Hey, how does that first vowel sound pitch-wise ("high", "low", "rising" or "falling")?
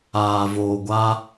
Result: low